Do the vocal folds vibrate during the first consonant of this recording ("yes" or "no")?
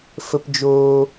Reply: no